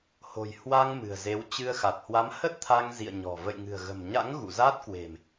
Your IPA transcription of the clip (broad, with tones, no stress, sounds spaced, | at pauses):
h o̤˨˩ j h w a˧ ŋ m ɨ̤˨˩ ə̯ z e˨˦ w t͡ɕ ɨ˧ ə̯ x a˨˩ t̚ h w a˨˦ m h ə˦˥ t̚ t̪ʰ a˧ ŋ z ḭ˧˨ ə̯ ɲ ɔ̤˨˩ v ə̰˧˨ j ŋ ɨ̤˨˩ ə̯ ɣ ə̤˨˩ m ɲ a̰˧˥ ŋ ɣ ṵ˧˨ z a˦˥ t̚ k w e̤˨˩ m